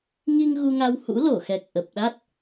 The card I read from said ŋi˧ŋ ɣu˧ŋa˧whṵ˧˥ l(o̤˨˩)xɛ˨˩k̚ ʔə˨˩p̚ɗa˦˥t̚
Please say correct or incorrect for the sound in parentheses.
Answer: incorrect